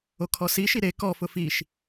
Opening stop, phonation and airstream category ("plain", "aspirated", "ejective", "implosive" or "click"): aspirated